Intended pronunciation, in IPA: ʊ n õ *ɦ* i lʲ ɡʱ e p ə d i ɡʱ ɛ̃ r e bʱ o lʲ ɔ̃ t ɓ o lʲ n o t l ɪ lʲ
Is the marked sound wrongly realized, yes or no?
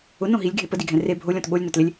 no